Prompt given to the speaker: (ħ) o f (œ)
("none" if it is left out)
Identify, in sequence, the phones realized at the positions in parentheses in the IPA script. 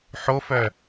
ħ, œ

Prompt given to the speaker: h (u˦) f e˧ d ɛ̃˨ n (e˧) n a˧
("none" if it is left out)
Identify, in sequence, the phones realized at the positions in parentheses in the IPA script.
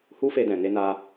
u˦, e˧

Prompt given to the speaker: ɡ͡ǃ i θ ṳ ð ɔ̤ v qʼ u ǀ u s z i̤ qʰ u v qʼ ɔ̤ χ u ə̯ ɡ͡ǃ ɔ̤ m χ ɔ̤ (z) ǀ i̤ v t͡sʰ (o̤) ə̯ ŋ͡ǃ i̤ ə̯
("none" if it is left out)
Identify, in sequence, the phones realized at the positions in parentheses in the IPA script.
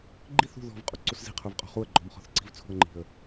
θ, ṳ

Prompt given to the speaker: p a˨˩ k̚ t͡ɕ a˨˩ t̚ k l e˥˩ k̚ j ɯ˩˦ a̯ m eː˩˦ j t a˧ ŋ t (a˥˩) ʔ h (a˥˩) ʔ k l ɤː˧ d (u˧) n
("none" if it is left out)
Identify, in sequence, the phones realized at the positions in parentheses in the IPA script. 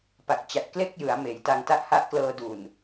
a˥˩, a˦˥, u˨˩

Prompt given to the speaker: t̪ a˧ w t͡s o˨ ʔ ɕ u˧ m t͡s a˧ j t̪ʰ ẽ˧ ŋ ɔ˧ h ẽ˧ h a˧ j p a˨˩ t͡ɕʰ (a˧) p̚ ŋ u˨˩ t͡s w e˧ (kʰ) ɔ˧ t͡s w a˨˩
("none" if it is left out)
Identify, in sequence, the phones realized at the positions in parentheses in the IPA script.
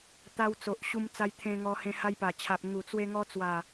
a˨, ŋ

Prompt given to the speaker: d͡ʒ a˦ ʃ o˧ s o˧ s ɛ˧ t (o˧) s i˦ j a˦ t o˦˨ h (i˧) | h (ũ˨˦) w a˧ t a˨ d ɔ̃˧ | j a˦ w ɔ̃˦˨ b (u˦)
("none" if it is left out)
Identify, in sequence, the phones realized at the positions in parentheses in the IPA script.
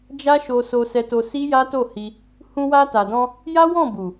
o˧, i˧, ũ˧, u˨

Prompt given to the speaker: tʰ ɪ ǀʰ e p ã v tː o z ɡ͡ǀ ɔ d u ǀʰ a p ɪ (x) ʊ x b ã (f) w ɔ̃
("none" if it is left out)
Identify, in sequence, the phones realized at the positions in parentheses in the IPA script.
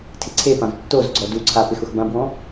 x, b

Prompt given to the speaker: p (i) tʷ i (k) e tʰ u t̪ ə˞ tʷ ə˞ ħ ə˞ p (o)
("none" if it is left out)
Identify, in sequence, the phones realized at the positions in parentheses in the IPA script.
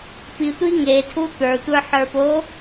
i, ŋ, o

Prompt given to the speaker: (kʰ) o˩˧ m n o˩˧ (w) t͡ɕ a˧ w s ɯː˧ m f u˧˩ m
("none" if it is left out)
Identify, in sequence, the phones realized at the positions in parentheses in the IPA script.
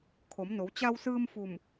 kʰ, w

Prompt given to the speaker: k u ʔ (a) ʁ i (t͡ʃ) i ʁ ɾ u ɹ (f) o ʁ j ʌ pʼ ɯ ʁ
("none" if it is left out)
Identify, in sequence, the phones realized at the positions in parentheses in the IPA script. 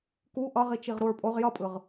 ʌ, t͡ʃ, pʼ

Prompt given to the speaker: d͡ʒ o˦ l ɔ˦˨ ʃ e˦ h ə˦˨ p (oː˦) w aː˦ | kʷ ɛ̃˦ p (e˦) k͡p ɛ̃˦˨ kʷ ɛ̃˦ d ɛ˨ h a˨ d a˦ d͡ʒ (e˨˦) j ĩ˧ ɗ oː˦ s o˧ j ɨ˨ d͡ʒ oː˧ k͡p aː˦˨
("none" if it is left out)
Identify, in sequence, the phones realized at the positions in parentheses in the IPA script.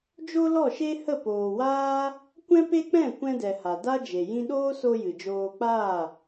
oː˨, e˦, e˨

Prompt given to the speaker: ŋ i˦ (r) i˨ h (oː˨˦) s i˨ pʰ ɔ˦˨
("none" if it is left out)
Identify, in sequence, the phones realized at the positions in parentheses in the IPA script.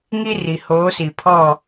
r, oː˨˦

